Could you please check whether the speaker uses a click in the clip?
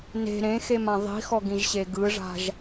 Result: no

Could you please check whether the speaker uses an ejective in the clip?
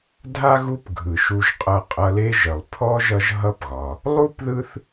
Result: yes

